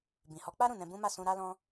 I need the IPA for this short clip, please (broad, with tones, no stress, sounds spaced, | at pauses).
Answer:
b ĩ˨ h ɔ˨˦ k͡p a˦ ɾ ũ˦˨ n ɛ̃˧ b ũ˦ m a˦˨ s ũ˧ ɾ a˦ l ɔ̃˦